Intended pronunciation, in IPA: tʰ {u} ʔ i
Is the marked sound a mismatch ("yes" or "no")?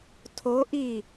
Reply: yes